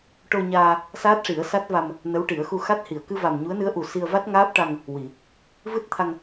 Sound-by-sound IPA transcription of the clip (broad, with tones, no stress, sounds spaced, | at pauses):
ʈ o˧ ɲ aː˧ | s aː˦˥ t̚ ʂ i˨˩˦ ə̯ s a˦˥ t̚ v a˧ m | n ə˧˥ w ʈ i˨˩˦ ə̯ x u˧ x a˦˥ t̚ h i˨˩˨ ə̯ k ɨ˧ v a˨˩ m ɲ u˧˥ ə̯ n ɨ˧˥ ə̯ ʔ u˨˩ s i˧ ə̯ v a˦˥ t̚ ŋ aː˦˥ p̚ ʈ a˧ ŋ | w i˨˩˨ | v ɨ˦˥ t̚ t̪ʰ a˧ ŋ